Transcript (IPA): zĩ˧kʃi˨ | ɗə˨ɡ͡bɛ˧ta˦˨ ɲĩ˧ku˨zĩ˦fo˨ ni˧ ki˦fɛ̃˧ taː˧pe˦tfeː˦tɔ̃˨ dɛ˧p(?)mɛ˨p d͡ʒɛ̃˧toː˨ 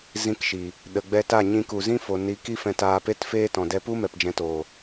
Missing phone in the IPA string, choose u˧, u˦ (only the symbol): u˦